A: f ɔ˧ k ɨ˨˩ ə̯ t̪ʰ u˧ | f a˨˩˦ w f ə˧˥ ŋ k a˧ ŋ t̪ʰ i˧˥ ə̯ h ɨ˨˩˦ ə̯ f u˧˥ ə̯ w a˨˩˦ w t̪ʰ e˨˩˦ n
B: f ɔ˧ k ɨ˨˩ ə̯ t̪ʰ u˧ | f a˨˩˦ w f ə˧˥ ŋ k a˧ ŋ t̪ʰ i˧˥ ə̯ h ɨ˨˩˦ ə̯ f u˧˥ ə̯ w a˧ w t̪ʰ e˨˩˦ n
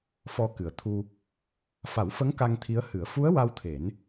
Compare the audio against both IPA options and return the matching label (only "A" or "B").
B